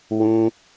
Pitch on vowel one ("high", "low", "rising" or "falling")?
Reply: high